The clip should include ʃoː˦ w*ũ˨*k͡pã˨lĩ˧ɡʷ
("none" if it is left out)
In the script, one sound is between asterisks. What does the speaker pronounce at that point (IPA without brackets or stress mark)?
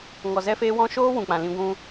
ũ˨